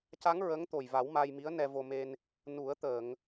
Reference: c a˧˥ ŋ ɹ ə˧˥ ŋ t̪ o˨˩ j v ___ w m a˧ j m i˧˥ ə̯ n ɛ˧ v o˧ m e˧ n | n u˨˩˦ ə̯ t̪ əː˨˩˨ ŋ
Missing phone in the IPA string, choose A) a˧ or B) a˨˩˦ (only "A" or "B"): B